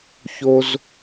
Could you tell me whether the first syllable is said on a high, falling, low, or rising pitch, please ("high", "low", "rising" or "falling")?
high